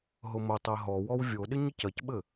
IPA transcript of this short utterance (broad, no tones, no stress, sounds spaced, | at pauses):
ɦ ʊ m ʊ tˤ e ɦ ɔ w ɔ w vʲ o ɗ ɪ ɲ ɪ c ɐ c ɓ ɘ